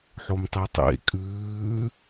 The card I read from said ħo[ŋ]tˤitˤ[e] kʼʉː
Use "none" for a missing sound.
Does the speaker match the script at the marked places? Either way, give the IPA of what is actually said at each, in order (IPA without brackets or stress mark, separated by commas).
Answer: m, ḛ